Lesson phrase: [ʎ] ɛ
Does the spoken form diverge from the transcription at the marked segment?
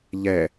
no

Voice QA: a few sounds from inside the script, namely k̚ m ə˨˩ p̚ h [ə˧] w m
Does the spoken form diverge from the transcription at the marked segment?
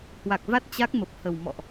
yes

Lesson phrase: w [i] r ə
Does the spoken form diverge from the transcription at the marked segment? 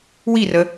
no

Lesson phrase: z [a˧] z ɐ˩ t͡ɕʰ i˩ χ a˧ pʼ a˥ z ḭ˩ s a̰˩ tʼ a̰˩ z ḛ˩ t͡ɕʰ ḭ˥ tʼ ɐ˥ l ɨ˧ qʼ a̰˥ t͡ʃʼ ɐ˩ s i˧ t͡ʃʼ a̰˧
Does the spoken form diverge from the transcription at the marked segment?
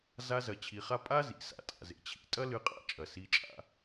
no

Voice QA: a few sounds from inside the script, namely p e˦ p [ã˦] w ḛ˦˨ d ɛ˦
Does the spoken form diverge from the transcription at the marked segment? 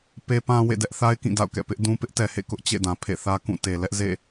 no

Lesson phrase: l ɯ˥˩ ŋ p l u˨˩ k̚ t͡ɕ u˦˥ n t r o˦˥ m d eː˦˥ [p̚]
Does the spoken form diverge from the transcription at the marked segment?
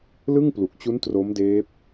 no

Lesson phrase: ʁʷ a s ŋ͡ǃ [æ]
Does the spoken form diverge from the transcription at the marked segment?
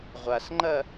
yes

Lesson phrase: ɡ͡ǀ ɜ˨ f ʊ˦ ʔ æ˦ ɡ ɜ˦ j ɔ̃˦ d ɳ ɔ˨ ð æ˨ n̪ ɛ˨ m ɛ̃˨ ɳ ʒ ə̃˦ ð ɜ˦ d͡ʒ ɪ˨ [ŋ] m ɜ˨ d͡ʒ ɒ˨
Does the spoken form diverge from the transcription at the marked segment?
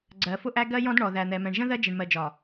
yes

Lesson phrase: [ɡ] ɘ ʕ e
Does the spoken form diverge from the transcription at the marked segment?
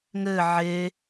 yes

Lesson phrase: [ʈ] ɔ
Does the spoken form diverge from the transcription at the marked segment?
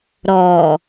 yes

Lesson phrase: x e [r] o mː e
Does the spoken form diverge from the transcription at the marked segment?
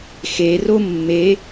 no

